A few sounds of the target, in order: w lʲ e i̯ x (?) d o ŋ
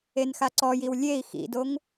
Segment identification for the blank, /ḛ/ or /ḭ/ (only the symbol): ḭ